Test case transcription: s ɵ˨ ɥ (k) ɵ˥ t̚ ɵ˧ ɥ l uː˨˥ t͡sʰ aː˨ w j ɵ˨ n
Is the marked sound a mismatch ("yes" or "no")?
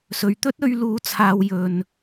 yes